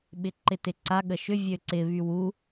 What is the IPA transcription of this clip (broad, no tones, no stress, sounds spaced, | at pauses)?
ɓ ɪ ǃ ɪ t ɪ ǀ a ɠ ə ʃ ʏ vʲ ø ǀ ɪ β y w u